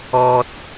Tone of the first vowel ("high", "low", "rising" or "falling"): low